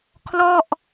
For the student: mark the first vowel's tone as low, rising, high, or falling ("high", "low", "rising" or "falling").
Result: falling